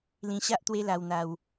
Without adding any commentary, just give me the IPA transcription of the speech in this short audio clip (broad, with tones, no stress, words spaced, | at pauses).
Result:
lĩ˧ɕa˦ʔ t̪we˦la˧wn̪a˧w